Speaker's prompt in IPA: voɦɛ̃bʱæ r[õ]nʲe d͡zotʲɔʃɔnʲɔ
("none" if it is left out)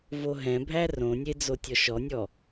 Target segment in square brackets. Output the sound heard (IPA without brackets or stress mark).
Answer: õ